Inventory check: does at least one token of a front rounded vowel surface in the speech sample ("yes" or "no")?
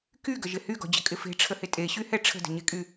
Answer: yes